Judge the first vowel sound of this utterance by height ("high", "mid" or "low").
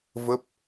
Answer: mid